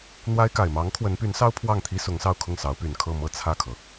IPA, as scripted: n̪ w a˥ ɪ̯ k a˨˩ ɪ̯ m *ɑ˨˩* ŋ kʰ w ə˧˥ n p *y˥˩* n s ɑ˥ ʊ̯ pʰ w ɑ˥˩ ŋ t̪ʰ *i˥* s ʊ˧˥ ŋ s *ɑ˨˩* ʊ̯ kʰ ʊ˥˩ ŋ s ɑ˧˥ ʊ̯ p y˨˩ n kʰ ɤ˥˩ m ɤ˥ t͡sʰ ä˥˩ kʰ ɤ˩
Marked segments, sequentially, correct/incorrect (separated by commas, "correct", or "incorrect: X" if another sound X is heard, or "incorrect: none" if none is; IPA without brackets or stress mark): incorrect: ɑ˧˥, incorrect: y˧˥, correct, incorrect: ɑ˥˧